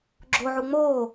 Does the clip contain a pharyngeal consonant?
yes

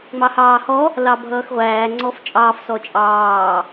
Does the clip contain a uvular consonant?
yes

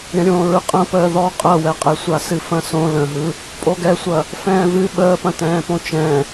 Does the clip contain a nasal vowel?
yes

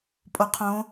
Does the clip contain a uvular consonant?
yes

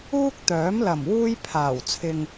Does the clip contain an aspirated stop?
yes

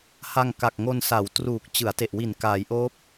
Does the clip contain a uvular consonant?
no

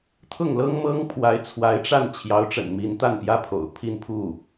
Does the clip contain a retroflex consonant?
yes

